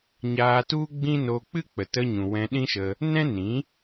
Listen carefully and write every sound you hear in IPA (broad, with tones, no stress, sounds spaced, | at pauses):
ɲ aː˧ t u˦ ɡ͡b ĩ˦ n o˧ k͡p ɨ˦ k͡p ə˨ t ə˧ ɲ ũ˨ w ɛ̃˧ ɗ ĩ˦ ʃ ə˧ | n ɛ̃˦ n ĩ˨˦